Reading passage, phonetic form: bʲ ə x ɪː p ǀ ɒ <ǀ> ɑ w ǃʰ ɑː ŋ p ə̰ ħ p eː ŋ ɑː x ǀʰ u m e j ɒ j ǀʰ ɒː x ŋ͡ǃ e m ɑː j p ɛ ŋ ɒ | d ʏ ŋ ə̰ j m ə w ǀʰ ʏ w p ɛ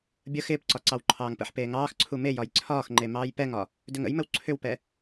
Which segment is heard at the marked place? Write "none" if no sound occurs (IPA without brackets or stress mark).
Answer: ǀ